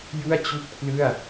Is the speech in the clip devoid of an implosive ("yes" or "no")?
yes